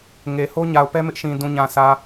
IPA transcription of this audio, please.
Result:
ŋ e˨ h o˦ ɲ a˨ ʊ̯ p ɛ˦ m ɪ˦ ʔ ʃ ĩ˨ d ũ˨ ɲ ã˨ sʰ ä˨

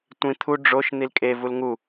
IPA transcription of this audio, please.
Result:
tʷ ĩ t̪ʰ u ɖ͡ʐ o ʃ n̪ i l kʼ e v u l ŋ u

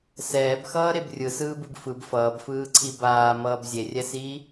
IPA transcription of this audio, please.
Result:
s ɛː b x ʌː ɾ e b rʲ ɯ s ɯː b ɯ b f ɯ b f ʌː b f ɯː ǀʰ i b aː m ʌː b zʲ e rʲ ɛ s iː

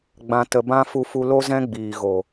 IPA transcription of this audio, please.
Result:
ɡ͡b ã˨ t ə˨ b ã˧ f u˧ f u˧ l o˦ z ɛ̃˦ ɡ͡b iː˨ ɣ o˨

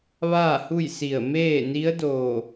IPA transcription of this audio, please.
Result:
ʋ aː˥˨ h u˥˨ j s i˧˩ ə̯ m eː˥˨ n i˧˥ ə̯ d oː˧˩

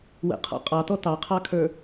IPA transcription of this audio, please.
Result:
w ə̰ qʰ ɔ̰ qʼ ɑ t ɔ t ɑ qʰ ɑ kʰ ə˞

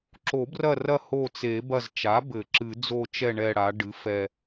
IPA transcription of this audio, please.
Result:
ǁ o˨˩˦ b r ɐ˦˨ r ɐ˦˨ h o˦˨ t͡s e˨˩˦ b ɐ˦˨ z t͡ʃ a˩˥ b ɘ˨˩˦ ǁ ɨ˨˩˦ d͡z o˦˨ t͡ʃ ɛ˦˨ ɳ ɛ˦˨ ɽ a˩˥ ɖ ɨ˩˥ f ɛ˦˨

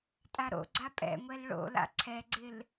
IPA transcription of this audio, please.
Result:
tʼ a ɾ o̰ ɡ͡ǀ a pʼ ɛ̰ ŋʷ ɛ l ɭ o̰ l a̰ ǀʰ ɛ ɡ͡ǀ ɪ l

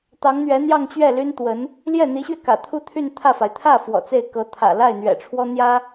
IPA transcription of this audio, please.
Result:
t̪ ɑ˧˥ ŋ n̪ ɥ ɛ˧˥ n̪ j ɑ˥˧ ŋ t͡ɕ ɥ ɛ˥˩ l y˥ n t̪ w ə˧˥ n | l j ɛ˥˩ n̪ i˧˥ ɕ ɥ ɛ˧ k ä̰˨˩ t̪ʰ u˥˧ t̪ʰ y˥˧ n t̪ʰ ä˥˩ f a˩ ɪ̯ t̪ʰ ä˥˩ f w ɔ̰˨˩ t͡s e˥˩ ɪ̯ k ɤ˧˥ t̪ʰ ä̰˨˩ l a˥˩ ɪ̯ n̪ ɥ ɛ̰˨˩ ʈ͡ʂʰ w ɔ˥ n̪ j ä˥

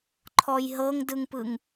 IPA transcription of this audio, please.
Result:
ǃʰ ɔ j ɦ ɤ ŋ d ɯ ŋ p ɯ ŋ

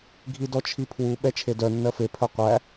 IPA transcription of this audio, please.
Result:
ɡʱ i d ɔ t͡ʃʰ i pʰ w u ɓ ɛ t͡ʃʰ e d œ nː ɜ f e pʰ œ qʷ æ

